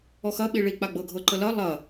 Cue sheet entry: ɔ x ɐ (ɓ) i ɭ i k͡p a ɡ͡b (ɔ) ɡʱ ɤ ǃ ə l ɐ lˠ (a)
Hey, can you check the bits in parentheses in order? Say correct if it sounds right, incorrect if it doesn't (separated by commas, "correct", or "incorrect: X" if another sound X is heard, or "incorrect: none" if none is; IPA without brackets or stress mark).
correct, incorrect: ɤ, incorrect: ɐ